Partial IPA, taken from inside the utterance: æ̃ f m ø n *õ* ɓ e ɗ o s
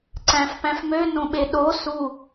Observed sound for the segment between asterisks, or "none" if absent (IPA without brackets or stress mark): õ